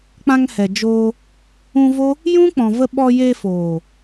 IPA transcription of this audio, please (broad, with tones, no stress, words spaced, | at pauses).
k͡pã˨ŋ hɛ˨d͡ʒoː˧ | ũ˧vo˦ | jũ˦k͡pɔ̃˨və˧ɓɔ˧ je˧foː˨